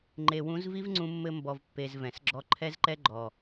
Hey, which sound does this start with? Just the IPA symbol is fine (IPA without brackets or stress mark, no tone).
ŋ͡ǃ